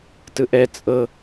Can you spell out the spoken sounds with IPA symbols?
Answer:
t ɯ ʔ ɛ t͡sʼ ɤ

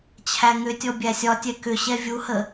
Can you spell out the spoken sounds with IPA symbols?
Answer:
t͡ɕʰ æ ŋ ʏ tʲ ɔ bʲ æ sʲ ɒ tʲ ɛ k ʏ ɕ ɛ vʲ u h ə

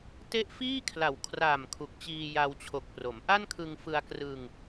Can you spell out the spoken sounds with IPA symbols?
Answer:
t e˦˥ ʔ f iː˥˩ kʰ l a˨˩ w kʰ r a˨˩ m kʰ u˨˩ k̚ t͡ɕ iː˧ j a˧ w t͡ɕʰ o˨˩ k̚ p r o˩˦ m ʔ a˥˩ n kʰ ɯ˧ ŋ f ɯ˧ a̯ k r ɯ˧ ŋ

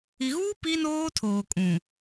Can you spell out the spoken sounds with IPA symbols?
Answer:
i˨ ɣ uː˦ p i˦ n oː˦ tʰ oː˨ kʼ ũ˨

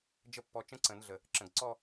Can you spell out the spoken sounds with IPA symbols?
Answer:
d͡ʒ ə˥˧ pː ɔ˧ t͡ʃ ə̃˦˥ ǀ ə̃˨˩˦ n ɮ ə˨˩ | ǁ ə̃˨˩ ɡ ǀ ɔ˥˧

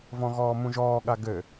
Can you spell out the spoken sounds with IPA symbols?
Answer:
v ɔ̃ ɣ ɔː m ũ ʒ ɔː ɠ a ɡ ɘ

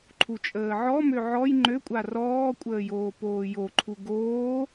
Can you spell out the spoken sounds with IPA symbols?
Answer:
ǃʰ u t͡ʃʼ əː ʕ ɔ m ø ʕ ɔ j ŋ͡ǃ ø kʷʼ a r ɔː kʷʼ əː j oː p oː j o ǃʰ u ɡ oː

